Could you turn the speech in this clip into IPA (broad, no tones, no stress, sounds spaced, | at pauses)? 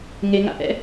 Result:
ŋ e ŋ a̰ ʔ ɛ̰